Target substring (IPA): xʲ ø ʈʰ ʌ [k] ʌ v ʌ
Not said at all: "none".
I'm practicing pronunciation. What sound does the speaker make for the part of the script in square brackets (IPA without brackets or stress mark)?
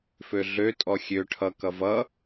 k